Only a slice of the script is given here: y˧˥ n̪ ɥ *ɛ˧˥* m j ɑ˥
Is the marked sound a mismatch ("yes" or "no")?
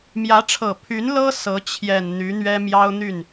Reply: yes